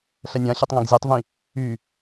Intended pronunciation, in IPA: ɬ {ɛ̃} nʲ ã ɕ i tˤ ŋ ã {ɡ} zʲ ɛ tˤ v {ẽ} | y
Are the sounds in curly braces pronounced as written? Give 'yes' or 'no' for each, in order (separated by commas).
no, yes, no